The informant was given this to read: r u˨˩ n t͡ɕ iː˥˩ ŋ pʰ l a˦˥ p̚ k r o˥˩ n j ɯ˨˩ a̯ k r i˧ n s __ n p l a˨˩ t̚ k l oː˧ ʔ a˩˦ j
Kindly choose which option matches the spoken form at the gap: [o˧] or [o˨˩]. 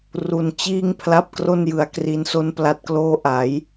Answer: o˧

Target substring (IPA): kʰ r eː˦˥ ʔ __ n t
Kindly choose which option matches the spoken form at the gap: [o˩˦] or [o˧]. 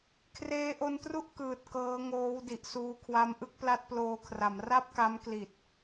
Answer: o˧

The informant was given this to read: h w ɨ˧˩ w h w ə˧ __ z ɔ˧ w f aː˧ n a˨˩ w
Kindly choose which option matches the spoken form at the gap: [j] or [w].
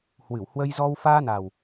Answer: j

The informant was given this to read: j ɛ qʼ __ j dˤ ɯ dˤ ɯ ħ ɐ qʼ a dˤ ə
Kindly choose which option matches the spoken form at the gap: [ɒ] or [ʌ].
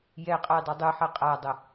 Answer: ʌ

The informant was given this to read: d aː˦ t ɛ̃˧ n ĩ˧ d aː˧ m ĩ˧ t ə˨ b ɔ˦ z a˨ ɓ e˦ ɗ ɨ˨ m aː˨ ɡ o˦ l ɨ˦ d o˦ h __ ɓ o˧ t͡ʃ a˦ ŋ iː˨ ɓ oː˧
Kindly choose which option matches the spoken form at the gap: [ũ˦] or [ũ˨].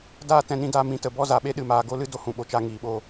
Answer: ũ˨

